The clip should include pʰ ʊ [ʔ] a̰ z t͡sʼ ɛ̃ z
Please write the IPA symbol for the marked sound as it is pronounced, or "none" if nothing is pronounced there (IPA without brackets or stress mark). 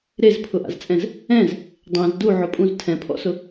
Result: ʔ